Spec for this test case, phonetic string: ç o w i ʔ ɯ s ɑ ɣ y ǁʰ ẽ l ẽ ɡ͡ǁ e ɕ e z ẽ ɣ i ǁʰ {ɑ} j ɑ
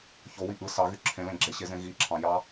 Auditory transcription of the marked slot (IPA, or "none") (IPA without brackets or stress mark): ɑ̃